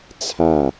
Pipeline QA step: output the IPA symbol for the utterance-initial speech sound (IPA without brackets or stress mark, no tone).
t͡sʰ